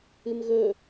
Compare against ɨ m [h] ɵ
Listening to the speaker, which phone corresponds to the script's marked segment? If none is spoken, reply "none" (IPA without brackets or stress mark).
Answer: ɣ